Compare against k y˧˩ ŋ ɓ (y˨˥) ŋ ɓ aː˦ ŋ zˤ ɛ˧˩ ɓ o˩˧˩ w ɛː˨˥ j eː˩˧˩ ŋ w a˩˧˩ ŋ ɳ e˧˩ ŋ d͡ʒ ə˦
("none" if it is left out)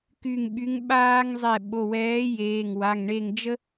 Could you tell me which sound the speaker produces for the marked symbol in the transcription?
y˨˥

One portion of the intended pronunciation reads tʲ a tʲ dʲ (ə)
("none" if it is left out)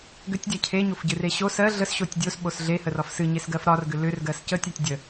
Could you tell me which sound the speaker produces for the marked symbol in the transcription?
ə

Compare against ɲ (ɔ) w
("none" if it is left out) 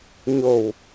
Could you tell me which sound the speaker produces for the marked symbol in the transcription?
o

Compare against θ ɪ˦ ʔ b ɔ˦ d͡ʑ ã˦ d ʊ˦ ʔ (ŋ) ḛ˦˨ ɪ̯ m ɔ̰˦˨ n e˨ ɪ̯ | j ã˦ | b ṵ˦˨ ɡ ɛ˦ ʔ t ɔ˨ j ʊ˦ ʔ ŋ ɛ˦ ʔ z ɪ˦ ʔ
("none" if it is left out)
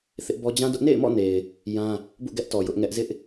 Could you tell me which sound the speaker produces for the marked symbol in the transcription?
n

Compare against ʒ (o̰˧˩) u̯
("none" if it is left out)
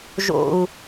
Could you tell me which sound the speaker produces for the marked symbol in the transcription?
o̰˧˩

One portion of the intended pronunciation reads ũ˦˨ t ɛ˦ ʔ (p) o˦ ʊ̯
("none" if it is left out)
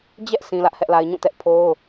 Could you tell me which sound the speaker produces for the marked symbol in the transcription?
pʰ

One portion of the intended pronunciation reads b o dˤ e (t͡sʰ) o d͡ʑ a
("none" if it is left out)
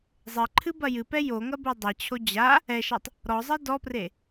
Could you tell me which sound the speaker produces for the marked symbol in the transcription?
t͡ɕʰ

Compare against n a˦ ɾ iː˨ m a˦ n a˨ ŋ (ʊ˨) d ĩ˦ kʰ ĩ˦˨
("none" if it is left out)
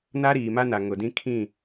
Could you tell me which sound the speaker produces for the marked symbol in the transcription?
ʊ˨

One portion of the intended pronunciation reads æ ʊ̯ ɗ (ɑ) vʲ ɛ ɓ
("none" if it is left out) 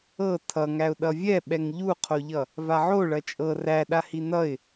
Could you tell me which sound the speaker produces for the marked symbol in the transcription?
ʌ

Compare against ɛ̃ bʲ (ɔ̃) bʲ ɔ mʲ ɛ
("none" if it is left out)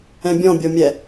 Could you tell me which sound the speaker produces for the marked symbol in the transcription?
ɔ̃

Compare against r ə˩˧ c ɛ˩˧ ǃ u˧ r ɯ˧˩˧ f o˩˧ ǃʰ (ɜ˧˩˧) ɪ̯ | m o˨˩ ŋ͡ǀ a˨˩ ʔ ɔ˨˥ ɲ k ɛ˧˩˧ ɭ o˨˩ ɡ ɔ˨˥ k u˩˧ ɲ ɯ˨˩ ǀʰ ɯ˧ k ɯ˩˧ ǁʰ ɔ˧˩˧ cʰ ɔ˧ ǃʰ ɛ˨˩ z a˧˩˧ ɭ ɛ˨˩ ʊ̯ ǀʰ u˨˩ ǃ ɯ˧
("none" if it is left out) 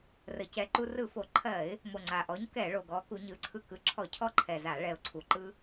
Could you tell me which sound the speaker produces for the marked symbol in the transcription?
ɜ˧˩˧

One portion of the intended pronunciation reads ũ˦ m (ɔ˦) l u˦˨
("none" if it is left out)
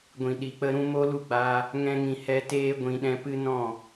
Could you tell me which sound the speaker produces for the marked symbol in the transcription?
o˦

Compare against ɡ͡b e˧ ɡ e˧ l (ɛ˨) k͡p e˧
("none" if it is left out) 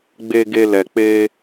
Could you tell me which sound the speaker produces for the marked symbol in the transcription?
ɛ˨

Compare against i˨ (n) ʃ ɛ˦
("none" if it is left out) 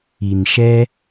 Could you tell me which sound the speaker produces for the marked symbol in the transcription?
n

